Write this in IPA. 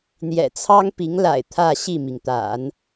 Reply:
n̪jɛ̰˨˩t͡sʰɑ˥ŋpi˧˥ŋla̰˨˩ɪ̯ t̪ʰä˥˧ɕi˥˩mi˩ŋ t̪a̰˨˩˦n

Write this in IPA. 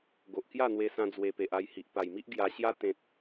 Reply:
ɡo˨ʔkja˥˧n̪we˧sã˧ d͡zwe˧pe˨ʔa˧jhi˨ʔ pa˨˩jmi˦ʔ ɡja˧ɕja˦ t̪ẽ˨t̚

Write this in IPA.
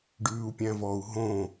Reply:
ɖʉːu̯pʲæ̃vɔu̯ ɦõ

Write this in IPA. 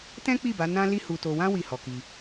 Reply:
tɛ̃˦k͡pi˦˨ba˨˦ nã˦ li˦hu˧to˧ wã˦ wi˦˨hɔ˧ki˧

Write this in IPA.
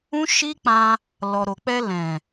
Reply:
ũ˦ʃi˦k͡pã˧ | lɔ˨ɾo˨k͡pɛ˧lɛ̃˨

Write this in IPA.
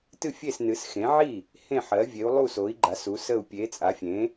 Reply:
tɨ˥˩fʲe˥˩snɨ˩˥s xẽ˩˥ʕi˥˩ | hẽ˥˩ħɜ˩˥ vʲe˩˥u̯lˠu˥˩ so˩˥i̯ɡ͡ǃa˩˥s u˩˥sə˥˩u̯ pʲe˩˥t͡sʼa˩˥fʲẽ˩˥

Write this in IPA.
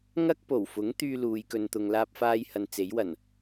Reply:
ŋɐ˥k̚po˨˩wfʊ˨˥ŋ t̪yː˥luː˨˧jkɵ˧n t̪ʊ˧ŋlaː˥p̚faː˥jhɐ˧n t͡se˨˥jwɐ˨˩n

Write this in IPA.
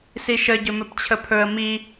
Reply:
siʃə ɟɵmɵpt͡ɕʰəpʰɵə̯ mi

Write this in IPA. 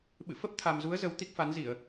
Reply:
ɓɨ̰˧˨fə˦˥p̚t̪ʰa˨˩mzu˨˦ə̯ zə˨˦wt̪i˦˥k̚fa˨˦nzi˧˩˨ə̯

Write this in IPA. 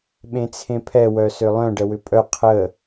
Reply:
ɓẽt͡sʰẽpʰɛ wœsʏlˠœ̃ ɖəwʏpʼœ qʰə

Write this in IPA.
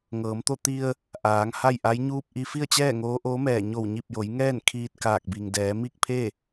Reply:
ŋɤː˩˧mt̪o˥˨ t̪i˧ə̯ | ʔaː˩˧ŋ ha˥˨jʔa˧˥jɲuː˥˨p̚ ʔi˧fi˥˨ə̯t͡ɕɛː˥˨ ŋoː˧˥ʔoː˧˥mɛː˧˩ ɲo˧˩wɲi˧˩p̚jo˩˧jŋɛː˥˨n kʰiː˧t̚kaː˧˩k̚bi˩ŋdɛː˩˧ mi˥˨k̚pʰe˥˨

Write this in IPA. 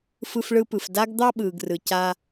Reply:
fɯ˧fɭɯ˧pɯ˨f da˦ɡd̪ɑ˦ ɓɯː˨ɡrɯ˨ ca˦

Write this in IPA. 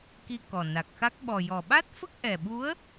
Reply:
ki˧kɔ˨˩na˨˩k̚xa˦˥k̚ ɓɔ˨˩jɔ˨˩ ɓa˦˥t̚fə˦˥k̚ʔɛ˨˩ɓu˧˥ə̯

